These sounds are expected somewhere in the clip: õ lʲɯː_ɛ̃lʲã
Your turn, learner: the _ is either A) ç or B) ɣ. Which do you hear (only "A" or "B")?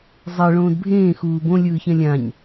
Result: A